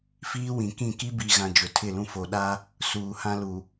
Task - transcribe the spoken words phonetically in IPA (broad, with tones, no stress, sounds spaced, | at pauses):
f iː˦ w ĩ˨ k ĩ˦˨ k i˦ b i˨ ɣ ã˨ d͡ʒ ʊ˨ tʰ ɪ˦˨ l ũ˦ f o˨ ɗ a˦ | s uː˨ h ã˦ l u˨